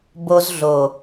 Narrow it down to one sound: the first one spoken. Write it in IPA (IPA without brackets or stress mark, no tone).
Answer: b